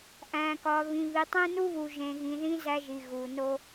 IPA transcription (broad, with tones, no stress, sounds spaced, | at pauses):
ʔ æ̃˨ k ɒ˨ β ĩ˨ β i˨ tˤ ẽ˦ n u˦ β u˨ ʒ ẽ˨ ɣ ĩ˨ ð ĩ˦ z æ˦ ʒ i˨ ɣ u˨ n o˨